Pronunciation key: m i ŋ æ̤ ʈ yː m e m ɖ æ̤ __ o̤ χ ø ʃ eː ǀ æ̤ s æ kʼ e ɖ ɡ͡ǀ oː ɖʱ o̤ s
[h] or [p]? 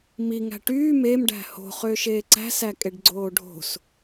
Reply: h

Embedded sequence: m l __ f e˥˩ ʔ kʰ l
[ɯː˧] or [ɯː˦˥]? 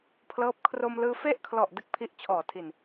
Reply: ɯː˧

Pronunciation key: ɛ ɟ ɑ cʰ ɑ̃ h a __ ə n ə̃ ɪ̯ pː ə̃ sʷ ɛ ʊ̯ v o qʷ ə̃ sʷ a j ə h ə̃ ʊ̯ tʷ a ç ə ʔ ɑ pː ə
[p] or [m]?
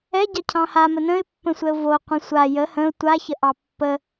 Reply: m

